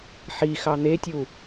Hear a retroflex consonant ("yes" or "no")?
no